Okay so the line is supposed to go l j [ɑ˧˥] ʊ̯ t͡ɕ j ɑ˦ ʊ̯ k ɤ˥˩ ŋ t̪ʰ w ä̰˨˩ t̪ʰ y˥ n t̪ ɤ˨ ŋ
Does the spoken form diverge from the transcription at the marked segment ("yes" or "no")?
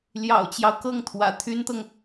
yes